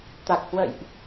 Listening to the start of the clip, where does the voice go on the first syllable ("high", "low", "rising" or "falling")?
low